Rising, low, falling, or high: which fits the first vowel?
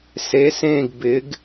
rising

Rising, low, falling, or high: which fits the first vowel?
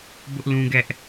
high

